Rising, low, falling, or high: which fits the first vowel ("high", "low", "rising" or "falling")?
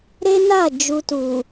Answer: high